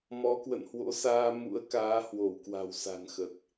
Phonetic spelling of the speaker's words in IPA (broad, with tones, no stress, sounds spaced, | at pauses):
m ɔ˨˦ k w ə̰˧˨ n h w o̰˧˥ s aː˧ m ṵ˧˥ ə̯ k aː˨˦ h w o˧˩ w k w a̤˨˩ w s a̤˨˩ n x ə˨˩ t̚